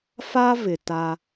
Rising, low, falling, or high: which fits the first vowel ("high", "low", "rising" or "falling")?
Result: high